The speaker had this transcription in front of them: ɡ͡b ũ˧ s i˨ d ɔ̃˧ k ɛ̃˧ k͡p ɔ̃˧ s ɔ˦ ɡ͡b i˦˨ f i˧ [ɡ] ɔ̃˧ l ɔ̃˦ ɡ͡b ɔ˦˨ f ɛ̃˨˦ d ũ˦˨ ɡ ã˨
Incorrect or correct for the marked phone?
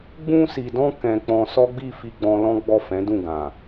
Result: incorrect: ɡ͡b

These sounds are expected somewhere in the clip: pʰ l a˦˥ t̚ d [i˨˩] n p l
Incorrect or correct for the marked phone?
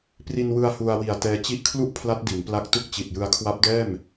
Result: incorrect: i˩˦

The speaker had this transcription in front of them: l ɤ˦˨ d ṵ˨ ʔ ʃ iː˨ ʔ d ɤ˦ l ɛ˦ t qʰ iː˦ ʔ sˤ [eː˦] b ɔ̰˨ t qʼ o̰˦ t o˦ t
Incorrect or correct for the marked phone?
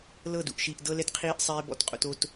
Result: correct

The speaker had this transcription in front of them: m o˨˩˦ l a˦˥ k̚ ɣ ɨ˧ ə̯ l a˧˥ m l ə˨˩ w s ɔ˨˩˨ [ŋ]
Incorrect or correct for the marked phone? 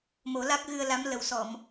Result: incorrect: m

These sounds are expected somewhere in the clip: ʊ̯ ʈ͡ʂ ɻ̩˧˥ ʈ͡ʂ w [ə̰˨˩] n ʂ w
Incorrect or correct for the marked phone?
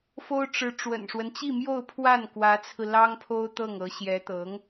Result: correct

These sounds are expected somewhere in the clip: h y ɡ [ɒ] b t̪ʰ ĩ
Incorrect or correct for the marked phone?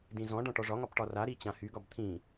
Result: correct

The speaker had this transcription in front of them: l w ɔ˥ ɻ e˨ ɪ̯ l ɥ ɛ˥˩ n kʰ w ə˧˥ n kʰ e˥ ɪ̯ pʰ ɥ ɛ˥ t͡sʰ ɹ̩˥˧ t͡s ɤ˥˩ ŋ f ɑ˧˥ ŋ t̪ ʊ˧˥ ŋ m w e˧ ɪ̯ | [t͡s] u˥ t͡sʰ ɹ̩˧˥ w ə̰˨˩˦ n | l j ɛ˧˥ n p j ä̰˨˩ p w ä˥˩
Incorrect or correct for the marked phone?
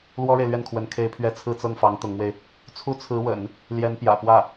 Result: incorrect: t͡sʰ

